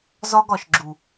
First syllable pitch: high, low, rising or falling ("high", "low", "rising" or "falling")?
high